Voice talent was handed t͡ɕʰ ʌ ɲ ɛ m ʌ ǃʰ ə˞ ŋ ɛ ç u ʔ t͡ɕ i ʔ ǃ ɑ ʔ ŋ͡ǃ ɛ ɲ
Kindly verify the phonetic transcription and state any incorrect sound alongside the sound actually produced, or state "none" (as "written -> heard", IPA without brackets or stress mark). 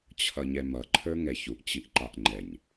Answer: none